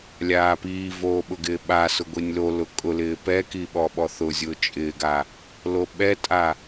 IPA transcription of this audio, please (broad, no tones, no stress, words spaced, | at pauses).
lʲaːpiːvoː ɓʊɡɪːɓasʊ ɡʷinʲlolʊ kʼʊlɪː pɛki ɓɔɓɔθʊzʲʊː t͡ʃʼɪːɡa | loɓɛtʼa